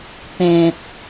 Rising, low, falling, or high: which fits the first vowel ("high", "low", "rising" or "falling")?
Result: low